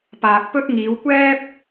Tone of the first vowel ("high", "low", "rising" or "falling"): low